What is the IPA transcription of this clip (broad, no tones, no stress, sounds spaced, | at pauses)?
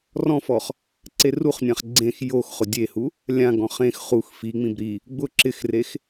r ɔ̃ f ɔ χ | ǀ e r u χ nʲ ã χ ɡ͡ǀ ẽ x j o x χ ʊ dʲ e h u | lʲ ã ɡ ɔ̃ χ ẽ x χ u x f i ŋ͡m ĩ b ɾ i | ɡ͡b ʊ ǁ ɪ x r e x